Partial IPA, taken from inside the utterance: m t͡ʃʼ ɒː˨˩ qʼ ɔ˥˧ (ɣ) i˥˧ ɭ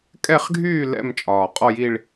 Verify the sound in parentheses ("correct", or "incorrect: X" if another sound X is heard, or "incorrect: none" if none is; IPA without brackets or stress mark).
incorrect: j